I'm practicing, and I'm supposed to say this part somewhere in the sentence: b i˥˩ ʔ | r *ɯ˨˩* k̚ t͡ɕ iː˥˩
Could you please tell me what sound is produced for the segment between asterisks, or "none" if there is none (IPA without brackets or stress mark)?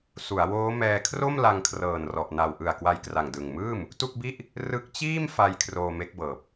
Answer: ɯ˦˥